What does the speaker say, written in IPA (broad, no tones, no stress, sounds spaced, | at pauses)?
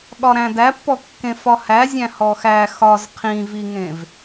ɠ ɒ ɾ æ̃ d æ pː ɔ kː ẽ f ɒ h æ zʲ æ̃ h ɔ x æ x ɒ z qʰ ĩ v i ŋ ẽ v